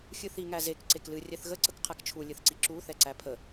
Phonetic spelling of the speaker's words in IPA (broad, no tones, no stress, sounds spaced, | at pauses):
xʲ ɨ θ i ŋ æ z e k ǀ e k l ɨ rʲ ɛ θ ɣ ə ǀ ə k qʰ æ k t͡ʃʰ u lʲ ɨ θ ǀ i ǁ u θ ɛ ǀ æ pʰ ə